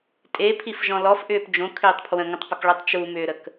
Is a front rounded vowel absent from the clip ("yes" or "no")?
no